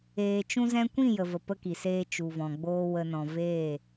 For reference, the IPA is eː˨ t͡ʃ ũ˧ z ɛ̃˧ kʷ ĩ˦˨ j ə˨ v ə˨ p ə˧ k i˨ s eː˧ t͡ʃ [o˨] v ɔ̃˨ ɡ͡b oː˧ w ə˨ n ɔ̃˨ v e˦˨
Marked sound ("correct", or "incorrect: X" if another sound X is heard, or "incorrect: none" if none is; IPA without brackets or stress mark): incorrect: u˨